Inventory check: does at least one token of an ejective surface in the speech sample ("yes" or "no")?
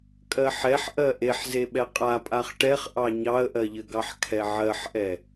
yes